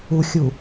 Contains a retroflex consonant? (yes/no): no